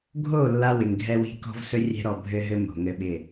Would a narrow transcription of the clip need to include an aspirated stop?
no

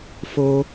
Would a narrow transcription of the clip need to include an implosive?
no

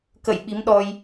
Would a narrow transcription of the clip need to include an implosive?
yes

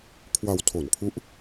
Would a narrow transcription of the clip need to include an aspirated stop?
yes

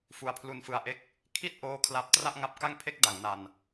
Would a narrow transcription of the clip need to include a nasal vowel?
no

